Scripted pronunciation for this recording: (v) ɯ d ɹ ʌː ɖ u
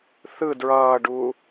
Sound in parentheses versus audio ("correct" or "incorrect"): incorrect